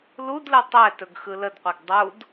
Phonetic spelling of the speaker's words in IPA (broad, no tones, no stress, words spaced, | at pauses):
ludlɯ tˤɛtɵɡxɯ lədqʷɛɡ dˤud